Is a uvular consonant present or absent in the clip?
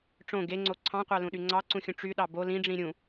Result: present